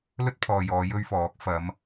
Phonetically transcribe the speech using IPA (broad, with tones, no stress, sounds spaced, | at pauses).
l ɵ˥ t̚ pʰ ɔː˨ j ɔː˨˧ j ɵ˥ ɥ f ɔː˨˥ k̚ f ɐ˨˧ m